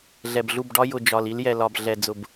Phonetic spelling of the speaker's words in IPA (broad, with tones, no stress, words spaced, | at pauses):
ɮɛ˨bɮu˦˨bɖɒ˦ jʊ˨ d͡ʒɒ˨li˦l jɛ˨lɒ˨b ɮɛ˨d͡zʊ˨b